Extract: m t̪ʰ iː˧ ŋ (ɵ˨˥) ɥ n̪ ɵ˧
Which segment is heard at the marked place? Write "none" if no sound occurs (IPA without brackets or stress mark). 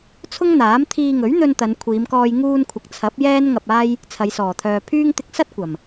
ɵ˨˥